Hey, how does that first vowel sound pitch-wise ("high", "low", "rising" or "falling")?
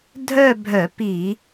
falling